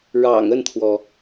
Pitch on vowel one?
low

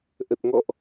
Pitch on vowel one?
low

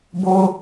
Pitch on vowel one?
high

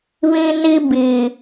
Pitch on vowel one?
high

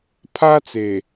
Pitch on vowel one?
high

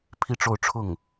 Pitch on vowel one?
falling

